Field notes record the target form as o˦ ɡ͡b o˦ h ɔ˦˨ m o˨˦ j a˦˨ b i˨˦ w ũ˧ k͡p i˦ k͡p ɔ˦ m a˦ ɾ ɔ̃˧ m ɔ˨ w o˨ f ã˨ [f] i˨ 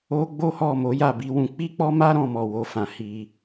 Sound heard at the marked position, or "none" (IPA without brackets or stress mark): h